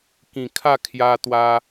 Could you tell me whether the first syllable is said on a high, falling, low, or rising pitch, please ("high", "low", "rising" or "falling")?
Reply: low